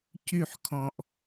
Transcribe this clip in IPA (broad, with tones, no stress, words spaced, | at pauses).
cy˨ħ kʰɔ̃˨ʔ